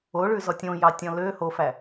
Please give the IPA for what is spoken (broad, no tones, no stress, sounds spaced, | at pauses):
o ɭ ʉ z ɔ tʲ õ j ɑ tʲ ɔ̃ l ø h o f æ